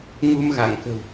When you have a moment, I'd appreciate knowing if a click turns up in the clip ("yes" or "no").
no